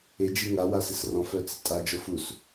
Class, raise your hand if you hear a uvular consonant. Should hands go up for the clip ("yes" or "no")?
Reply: no